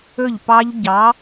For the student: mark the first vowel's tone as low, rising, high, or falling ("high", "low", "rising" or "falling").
falling